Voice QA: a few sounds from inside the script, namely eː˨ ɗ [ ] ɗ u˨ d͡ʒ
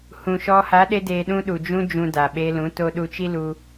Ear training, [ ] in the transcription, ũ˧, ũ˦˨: ũ˧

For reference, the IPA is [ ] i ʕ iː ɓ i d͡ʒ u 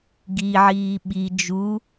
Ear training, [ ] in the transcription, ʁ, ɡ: ɡ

